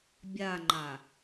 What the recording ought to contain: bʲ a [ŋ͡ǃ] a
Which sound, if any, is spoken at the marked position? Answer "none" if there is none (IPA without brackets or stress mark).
ŋ͡ǃ